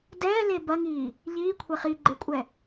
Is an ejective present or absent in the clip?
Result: present